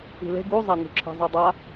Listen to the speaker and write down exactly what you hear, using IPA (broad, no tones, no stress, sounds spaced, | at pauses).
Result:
i̤ l e̤ ɡ u zˤ a n̪ ṳ ǁʰ e̤ zˤ ɯ dˤ a